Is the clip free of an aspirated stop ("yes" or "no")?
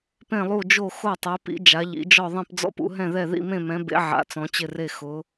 yes